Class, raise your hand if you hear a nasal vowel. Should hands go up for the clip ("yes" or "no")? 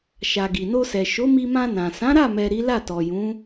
yes